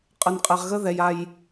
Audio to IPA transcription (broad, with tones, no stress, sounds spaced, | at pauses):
qʼ ə˨ n qʼ ɛ˨ ʁ ɣ ə˦ ð ɛ˨ j a˨ j